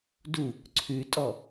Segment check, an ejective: present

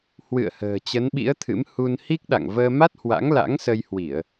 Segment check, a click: absent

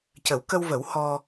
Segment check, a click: absent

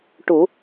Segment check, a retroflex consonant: present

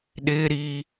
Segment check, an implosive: present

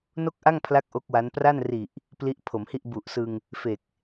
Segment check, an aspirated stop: present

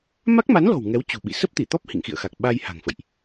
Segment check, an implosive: present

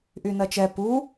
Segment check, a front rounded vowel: present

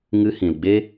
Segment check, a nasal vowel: present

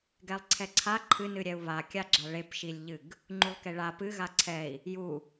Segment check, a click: present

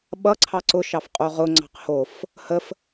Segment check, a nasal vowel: absent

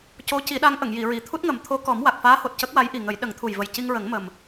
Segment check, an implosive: present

